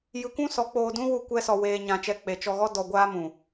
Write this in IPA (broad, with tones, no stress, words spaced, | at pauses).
jɨ˧kʷũ˦ sɔ˨˦k͡poː˧dũ˦ wu˧ kʷɛ˦sɔ˧ weː˧ɲã˧t͡ʃɛ˧ k͡pe˨t͡ʃɔ˧ɣɔ˦ dɔ˧ɡʷaː˦mũ˨